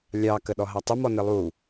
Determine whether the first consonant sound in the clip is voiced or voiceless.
voiced